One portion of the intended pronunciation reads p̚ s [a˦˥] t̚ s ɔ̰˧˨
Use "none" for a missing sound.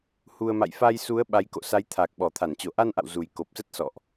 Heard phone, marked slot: ə˦˥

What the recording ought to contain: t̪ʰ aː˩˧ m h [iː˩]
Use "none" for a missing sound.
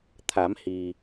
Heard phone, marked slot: iː˩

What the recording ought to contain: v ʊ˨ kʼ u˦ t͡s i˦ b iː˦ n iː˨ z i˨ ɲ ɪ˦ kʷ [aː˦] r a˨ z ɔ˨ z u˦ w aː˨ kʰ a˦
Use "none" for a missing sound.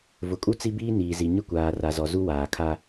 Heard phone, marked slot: aː˨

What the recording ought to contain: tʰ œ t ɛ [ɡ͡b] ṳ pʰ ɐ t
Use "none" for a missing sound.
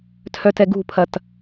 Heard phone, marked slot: ɡ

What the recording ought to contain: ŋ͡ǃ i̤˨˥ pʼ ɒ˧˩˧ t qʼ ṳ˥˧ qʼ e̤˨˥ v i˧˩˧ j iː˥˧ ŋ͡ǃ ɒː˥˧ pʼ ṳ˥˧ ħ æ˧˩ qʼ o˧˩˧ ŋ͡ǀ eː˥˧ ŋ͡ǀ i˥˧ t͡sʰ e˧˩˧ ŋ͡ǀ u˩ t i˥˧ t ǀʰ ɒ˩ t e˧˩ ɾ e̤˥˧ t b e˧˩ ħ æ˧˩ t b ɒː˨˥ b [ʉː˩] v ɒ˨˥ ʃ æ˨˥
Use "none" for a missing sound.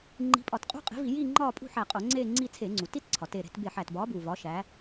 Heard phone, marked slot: uː˩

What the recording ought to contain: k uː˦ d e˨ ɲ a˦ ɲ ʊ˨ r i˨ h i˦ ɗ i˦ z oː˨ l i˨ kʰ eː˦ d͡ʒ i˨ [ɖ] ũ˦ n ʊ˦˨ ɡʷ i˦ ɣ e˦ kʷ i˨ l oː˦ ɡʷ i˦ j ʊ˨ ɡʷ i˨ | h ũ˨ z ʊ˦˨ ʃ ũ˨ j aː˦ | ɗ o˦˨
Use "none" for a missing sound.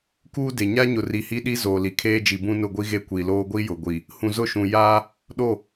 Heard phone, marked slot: b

